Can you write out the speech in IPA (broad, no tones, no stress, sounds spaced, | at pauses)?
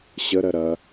ɕ ə ɾ ɜ ɾ ɐ